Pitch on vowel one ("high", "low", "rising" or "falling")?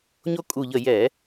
high